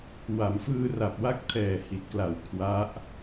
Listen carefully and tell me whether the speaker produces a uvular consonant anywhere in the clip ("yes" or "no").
no